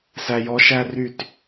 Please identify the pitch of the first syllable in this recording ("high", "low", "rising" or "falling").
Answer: low